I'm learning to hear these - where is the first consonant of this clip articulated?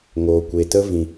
velum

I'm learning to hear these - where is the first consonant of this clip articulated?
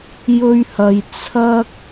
palate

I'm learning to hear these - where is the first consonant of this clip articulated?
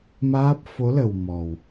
lips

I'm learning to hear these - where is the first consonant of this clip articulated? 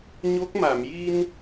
palate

